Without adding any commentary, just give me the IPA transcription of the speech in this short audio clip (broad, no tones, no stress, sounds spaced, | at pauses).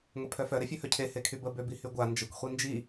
ŋʷ e pʰ œ f œ ɾ e fʲ ø h œ cʰ e h e kʰ y b ə b ø b i h y ɡʷ a n d͡ʒ ə kʷ χʷ i n d͡ʒ i